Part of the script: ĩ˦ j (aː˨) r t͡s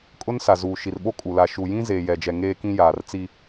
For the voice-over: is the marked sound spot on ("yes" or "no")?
yes